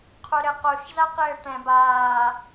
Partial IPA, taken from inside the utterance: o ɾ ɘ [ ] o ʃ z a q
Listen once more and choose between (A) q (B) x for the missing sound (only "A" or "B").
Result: A